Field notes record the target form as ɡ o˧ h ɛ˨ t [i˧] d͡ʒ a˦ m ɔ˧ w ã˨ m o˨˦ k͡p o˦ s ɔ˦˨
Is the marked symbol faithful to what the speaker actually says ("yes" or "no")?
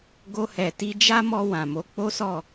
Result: yes